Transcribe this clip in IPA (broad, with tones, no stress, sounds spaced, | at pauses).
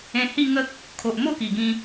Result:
ẽ˧ h i˥˧ ŋ ə˦ k̚ | kʰ o˨ ʔ m o˥˧ k i˨˩ ɡ ĩ˧